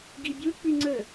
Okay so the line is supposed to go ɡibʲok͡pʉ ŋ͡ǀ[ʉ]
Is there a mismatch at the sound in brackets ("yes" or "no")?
yes